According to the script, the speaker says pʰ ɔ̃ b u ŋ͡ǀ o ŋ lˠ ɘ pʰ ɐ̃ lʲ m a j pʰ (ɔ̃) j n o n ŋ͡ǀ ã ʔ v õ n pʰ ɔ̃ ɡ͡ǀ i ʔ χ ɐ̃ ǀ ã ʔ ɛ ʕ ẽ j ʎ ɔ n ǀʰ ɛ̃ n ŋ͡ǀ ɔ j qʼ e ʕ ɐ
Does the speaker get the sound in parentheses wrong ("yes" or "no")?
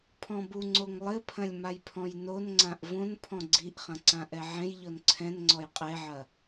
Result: no